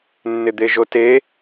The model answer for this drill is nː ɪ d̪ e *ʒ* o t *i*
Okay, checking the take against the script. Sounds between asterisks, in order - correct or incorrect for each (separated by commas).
correct, incorrect